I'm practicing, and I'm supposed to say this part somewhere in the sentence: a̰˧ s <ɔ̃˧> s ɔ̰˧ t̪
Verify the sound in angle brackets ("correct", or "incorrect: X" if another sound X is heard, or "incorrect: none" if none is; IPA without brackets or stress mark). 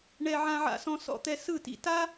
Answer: correct